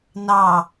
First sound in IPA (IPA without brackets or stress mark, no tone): n